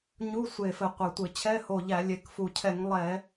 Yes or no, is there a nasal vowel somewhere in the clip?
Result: no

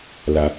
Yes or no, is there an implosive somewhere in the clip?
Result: no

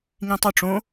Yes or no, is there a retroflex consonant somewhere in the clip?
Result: yes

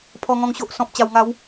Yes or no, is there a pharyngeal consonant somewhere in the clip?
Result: no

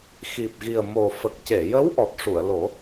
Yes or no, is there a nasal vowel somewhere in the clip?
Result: no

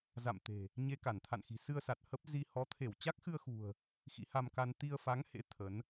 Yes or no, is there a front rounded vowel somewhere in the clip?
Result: no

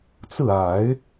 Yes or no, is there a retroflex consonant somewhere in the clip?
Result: no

